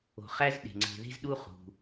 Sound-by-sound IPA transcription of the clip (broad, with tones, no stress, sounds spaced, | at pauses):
o̤˨ χ æ˥ z ɗ e̤˩ ŋ͡ǀ e̤˨ ð e̤˥ z ɗ u˥ χ ṳ˩